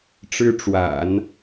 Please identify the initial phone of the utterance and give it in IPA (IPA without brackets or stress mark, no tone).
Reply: ʈ͡ʂ